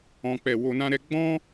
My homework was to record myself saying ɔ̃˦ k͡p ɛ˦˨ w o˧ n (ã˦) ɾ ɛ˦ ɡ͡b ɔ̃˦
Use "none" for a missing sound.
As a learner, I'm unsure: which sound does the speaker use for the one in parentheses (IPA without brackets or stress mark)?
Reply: ã˦